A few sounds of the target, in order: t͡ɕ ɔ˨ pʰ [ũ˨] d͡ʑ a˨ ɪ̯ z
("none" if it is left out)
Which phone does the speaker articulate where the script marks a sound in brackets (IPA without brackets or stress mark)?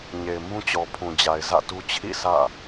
ũ˨